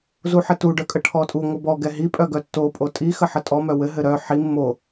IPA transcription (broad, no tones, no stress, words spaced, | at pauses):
zuħɘtu ɖœkʼəʈʰɔtʼu ŋʷɘbɔ ɡɛɦi pʼœɡœtːo pʼotʼi xəħətʼɔ mœwɘ ɦɘɾœ ħi mːo